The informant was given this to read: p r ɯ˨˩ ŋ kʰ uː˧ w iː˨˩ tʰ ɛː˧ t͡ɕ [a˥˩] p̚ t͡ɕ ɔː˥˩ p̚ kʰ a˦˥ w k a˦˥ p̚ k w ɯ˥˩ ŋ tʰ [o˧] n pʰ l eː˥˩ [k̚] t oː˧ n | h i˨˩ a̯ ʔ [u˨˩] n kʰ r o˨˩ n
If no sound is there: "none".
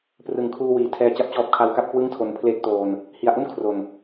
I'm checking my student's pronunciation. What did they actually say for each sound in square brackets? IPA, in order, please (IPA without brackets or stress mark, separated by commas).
a˥˩, o˧, k̚, u˥˩